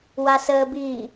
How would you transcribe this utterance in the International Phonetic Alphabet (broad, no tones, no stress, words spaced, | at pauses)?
wasəːbi